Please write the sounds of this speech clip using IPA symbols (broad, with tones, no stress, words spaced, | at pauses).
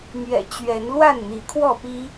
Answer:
mɥɛ̰˨˩t͡ɕɥɛ˨˦n lwa˥˨nn̪i˨˦kʰwɔ˥˨pi˦